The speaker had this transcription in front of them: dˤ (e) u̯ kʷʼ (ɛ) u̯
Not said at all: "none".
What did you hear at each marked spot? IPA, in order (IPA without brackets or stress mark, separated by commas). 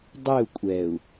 e, ɛ